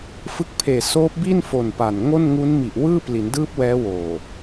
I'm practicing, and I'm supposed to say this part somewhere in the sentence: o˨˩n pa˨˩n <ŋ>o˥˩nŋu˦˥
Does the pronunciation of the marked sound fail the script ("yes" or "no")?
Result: no